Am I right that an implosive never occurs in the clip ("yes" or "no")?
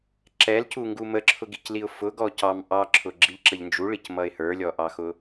yes